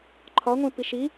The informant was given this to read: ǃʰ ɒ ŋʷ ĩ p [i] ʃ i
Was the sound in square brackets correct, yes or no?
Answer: yes